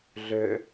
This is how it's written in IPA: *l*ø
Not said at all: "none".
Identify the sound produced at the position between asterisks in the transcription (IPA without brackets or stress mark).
ɮ